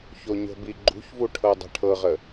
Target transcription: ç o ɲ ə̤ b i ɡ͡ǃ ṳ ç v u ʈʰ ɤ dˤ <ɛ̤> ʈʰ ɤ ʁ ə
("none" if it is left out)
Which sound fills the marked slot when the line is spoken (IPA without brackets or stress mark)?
ɛ̤